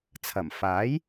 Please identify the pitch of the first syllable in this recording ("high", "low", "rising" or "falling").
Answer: low